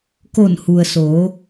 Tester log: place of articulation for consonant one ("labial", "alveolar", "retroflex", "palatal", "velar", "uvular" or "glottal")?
velar